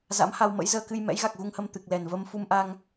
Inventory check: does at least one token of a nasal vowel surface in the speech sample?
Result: no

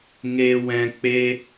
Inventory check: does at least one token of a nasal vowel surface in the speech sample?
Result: yes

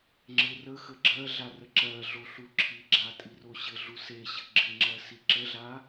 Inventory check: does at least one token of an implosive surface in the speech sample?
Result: no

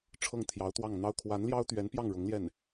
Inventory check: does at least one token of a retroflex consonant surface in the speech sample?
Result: yes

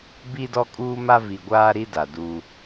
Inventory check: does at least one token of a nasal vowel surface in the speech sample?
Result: no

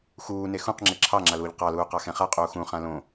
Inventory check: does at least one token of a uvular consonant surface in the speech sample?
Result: yes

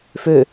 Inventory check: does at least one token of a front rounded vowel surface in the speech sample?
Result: yes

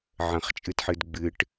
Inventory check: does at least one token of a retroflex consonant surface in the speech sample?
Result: yes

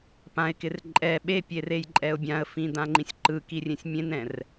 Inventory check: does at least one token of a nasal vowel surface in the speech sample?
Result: yes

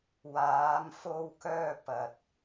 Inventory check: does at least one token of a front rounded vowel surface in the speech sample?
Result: yes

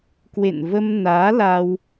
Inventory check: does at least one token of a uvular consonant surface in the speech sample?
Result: no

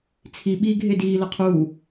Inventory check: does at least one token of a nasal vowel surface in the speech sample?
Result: no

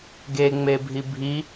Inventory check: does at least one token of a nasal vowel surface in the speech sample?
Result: no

